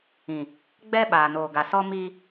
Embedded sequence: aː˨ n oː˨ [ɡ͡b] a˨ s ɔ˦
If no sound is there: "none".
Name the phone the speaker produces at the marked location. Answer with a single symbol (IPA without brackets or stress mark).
ɡ